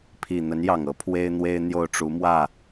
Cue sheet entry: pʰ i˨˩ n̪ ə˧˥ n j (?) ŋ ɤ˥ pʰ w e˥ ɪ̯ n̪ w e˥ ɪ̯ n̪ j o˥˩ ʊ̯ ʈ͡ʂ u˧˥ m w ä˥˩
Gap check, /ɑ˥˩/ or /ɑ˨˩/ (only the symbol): ɑ˨˩